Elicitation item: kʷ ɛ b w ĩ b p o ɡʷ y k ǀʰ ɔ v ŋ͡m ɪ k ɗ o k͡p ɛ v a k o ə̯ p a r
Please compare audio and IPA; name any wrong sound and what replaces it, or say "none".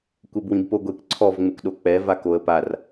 y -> e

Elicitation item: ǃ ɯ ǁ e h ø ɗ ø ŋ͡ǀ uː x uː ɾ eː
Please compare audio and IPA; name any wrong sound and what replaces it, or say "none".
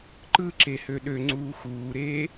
none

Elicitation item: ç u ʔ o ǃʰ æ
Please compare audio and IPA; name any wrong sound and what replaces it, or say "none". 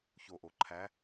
u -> o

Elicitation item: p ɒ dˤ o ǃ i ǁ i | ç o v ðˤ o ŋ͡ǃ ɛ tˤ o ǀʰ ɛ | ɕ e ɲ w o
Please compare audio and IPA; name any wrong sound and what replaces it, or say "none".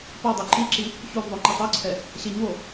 none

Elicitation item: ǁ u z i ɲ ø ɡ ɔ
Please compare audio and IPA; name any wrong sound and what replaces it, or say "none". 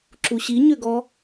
z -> ɕ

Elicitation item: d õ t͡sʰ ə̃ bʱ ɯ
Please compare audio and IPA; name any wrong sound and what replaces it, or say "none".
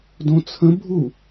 ɯ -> u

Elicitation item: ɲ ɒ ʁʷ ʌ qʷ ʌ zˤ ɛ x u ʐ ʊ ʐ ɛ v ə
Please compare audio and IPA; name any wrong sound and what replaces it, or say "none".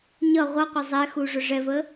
ɒ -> ʌ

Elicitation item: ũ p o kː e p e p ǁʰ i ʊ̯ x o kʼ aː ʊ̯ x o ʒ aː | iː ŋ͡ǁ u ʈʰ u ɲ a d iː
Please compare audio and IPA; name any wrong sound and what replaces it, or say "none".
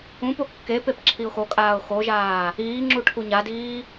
none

